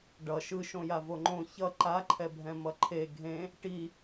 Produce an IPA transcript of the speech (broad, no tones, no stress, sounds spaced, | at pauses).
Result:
ɖ ʌ ʃ ɯ ʃ õ j a v o ŋ͡ǃ õ ç ʌ ǃ a ǃʰ ɛ bʱ ɛ̃ m ʌ ǃʰ e ɡʱ ẽ | ʈ i